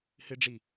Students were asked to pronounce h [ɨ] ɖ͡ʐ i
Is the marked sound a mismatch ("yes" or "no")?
no